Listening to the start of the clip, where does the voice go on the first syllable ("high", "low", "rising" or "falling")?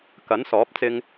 rising